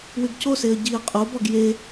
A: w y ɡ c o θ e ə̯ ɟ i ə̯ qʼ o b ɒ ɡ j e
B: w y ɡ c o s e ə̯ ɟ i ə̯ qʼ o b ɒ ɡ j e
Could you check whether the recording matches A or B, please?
B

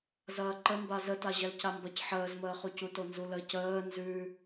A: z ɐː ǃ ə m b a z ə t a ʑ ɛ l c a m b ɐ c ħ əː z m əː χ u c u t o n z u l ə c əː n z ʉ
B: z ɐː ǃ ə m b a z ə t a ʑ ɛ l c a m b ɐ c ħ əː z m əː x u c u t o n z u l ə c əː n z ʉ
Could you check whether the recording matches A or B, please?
A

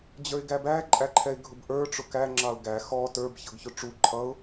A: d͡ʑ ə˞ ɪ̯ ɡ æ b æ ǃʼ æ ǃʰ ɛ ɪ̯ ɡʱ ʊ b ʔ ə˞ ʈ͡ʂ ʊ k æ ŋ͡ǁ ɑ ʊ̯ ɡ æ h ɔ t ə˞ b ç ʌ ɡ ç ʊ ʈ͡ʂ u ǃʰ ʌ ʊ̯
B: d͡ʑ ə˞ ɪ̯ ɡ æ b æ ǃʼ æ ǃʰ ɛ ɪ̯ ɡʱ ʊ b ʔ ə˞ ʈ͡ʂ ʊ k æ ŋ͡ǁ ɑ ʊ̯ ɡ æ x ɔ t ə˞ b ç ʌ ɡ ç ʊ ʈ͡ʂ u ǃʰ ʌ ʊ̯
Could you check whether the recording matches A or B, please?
B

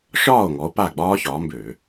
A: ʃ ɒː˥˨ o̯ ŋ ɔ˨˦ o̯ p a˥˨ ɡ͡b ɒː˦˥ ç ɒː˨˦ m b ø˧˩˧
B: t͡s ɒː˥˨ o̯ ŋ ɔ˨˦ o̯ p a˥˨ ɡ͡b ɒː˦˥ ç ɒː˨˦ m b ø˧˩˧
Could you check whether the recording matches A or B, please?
A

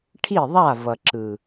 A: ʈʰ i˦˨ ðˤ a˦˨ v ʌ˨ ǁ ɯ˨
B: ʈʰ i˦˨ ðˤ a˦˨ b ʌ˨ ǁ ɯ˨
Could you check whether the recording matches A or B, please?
A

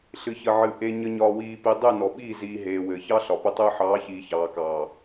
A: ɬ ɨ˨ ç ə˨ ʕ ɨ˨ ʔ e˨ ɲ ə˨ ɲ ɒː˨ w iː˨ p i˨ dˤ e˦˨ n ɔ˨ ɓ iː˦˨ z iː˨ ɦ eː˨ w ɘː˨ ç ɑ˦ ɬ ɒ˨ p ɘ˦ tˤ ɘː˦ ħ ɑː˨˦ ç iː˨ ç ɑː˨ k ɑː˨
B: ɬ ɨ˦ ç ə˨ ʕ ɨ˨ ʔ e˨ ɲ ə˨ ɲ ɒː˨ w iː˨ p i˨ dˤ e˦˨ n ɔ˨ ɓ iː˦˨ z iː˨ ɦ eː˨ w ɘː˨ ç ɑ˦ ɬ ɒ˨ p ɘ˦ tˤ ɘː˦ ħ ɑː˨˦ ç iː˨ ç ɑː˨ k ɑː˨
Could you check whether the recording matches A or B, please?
A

